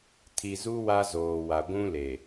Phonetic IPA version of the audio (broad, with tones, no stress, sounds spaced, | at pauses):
tʰ i˨ z u˦ w a˦ z oː˨ w a˨ ɡʷ ũ˦ l e˨